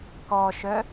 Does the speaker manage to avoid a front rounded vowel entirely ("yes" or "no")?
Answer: no